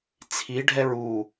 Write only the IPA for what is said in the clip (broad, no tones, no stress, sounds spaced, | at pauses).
t͡sʰ i ɖʱ ɛ ɹ u